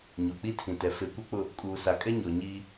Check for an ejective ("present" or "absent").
present